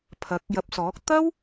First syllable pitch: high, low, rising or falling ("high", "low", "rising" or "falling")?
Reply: rising